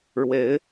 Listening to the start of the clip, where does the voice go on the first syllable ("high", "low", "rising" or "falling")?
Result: rising